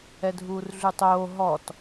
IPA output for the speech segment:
ɛ dʱ uː r ɮ ʉ tˤ oː ɦ ɔ t

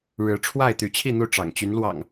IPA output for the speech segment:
ɻ ɻ̩˨˦ ʈ͡ʂʰ w a˥˨ ɪ̯ t̪ y˨˦ t͡ɕʰ i˥˨ n̪ u˥˨ ʈ͡ʂ ɑ̰˨˩ ŋ t͡ɕ y˨˦ n l w ɑ̰˨˩ ŋ

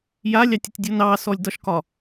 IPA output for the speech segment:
j a lʲ ɑ tʲ ə tʲ dʲ o n ɑ s ɔ lʲ d ɒ ʃ k ɒ

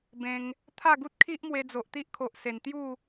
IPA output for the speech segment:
b ẽ˦ ŋ | t̪ʰ a˥˧ ɡ u˦ t̚ kʰ i˦ ʔ m w e˧ d͡z o˨ ʔ t̪ i˦ ʔ kʰ o˨ ʔ s e˨˩ n t̪ j u˥˧

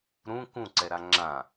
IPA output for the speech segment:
ɾ ũ k ũ ǀ ɛ ɾ a ŋ͡ǁ ã

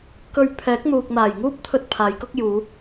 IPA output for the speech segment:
k ɵ˨ ɥ pʰ ɛː˨˥ k̚ n̪ uː˨ k̚ n̪ aː˨˩ j ŋ uː˥ p̚ t̪ʰ ɵ˧ t̚ pʰ aː˨˧ j k ʊ˥ k̚ j uː˨˧

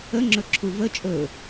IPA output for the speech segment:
ə ŋ͡ǁ ɵ ǁʰ u v ə t͡ʃʼ ɵ

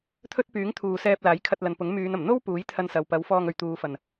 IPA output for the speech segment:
t̪ʰ ɵ˥ t̚ p yː˨˥ ŋ t̪ʰ uː˨ s ɛː˧ p̚ l aː˨˥ j kʰ ɐ˧ t̚ l ɐ˨ n p ʊ˨˥ ŋ m yː˨˧ n ɐ˨˩ m n̪ o˥ w p uː˨˥ j t̪ʰ ɐ˧ n s ɐ˨ w p ɐ˨˥ w f ɔː˧ ŋ ɵ˨ ɥ t̪ uː˨˧ f ɐ˨ n

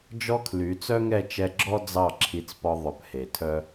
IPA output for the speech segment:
d͡ʒ ɔ˦ kʰ l y˨˦ t͡s œ˦ ŋ ɛ˦˨ t͡ʃ ɛ˧ ɡ͡ǁ ɔ˦ d͡z ɑ˦˨ ǁʰ i˧ t͡s p ɔ˧ ðˤ ɵ˨˦ p h e˨ tʰ œ˦

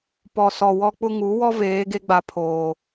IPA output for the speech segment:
p ɔ˨ s ɔ˨ w ɔ˦ k͡p ʊ˦ ŋ u˨˦ w ɔ˦ v eː˨˦ ɡ e˦ ɡ͡b a˨ pʰ oː˨

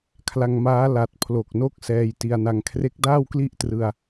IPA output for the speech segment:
kʰ l a˧ ŋ m aː˦˥ l a˨˩ t̚ pʰ l o˨˩ k̚ n o˥˩ k̚ s ɛː˧ j t i˧ a̯ n a˧ ŋ kʰ r e˦˥ k̚ d aː˥˩ w k l i˥˩ ʔ t r ɯ˧ a̯

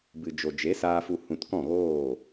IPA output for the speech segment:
b ɨ˨ d͡ʒ o˨ d͡ʒ e˨˦ s aː˧ f u˧ h ũ˧ t k ɔ̃˦˨ ɣ oː˦˨

